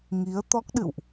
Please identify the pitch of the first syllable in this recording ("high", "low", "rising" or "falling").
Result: rising